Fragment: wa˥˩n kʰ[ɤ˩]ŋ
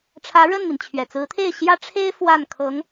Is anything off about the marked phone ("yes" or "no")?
yes